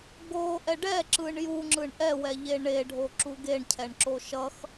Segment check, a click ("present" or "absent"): present